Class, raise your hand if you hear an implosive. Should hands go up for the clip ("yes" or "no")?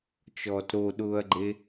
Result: yes